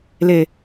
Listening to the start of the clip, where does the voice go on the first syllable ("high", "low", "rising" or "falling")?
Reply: low